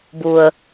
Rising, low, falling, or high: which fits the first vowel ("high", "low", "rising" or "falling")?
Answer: low